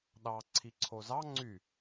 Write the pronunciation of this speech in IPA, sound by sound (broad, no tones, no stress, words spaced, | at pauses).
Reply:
ɗɑ ǀʰiǀʰozɑ ŋ͡ǀy